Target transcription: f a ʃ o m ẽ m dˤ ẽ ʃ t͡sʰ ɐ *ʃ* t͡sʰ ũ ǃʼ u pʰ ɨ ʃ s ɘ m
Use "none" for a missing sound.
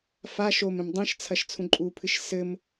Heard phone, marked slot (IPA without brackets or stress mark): ʃ